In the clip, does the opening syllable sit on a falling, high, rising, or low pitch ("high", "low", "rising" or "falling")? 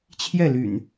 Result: falling